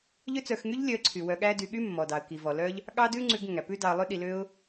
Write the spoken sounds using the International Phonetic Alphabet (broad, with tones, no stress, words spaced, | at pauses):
ʎø˦t͡sœ˧xŋy˦ʎ lʲœ˧ə̯ǀʰy˨ wœ˧ɠæ˦dy˧ ɠy˦mːɔ˨dɑ˨ə̯ ki˨vɔ˨lœ˦ʎ | ɠɑ˦dʉ˦ŋ͡ǀʉ˧ɡ ŋæ˨pʉ˦dɑ˧ə̯lˠʉ˦ ɗi˧lø˦ʊ̯